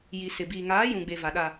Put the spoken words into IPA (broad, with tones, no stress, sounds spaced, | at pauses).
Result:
j i˨ s ɪ˨ b iː˨ ŋ aː˨˦ j ũ˨ ɡ͡b e˨ v a˨ ɗ a˨